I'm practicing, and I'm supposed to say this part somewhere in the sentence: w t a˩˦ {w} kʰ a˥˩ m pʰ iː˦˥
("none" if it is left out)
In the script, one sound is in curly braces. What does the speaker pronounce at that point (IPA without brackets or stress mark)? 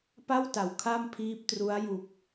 w